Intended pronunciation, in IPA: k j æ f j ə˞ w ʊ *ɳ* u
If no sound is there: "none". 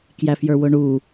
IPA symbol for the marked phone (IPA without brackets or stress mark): ɳ